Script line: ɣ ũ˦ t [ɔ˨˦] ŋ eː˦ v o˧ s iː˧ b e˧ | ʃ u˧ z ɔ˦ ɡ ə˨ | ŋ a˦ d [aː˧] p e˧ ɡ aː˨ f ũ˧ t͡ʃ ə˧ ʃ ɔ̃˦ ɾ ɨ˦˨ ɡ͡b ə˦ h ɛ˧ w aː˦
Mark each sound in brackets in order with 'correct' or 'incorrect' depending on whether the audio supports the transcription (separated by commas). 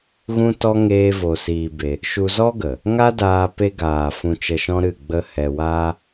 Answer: incorrect, correct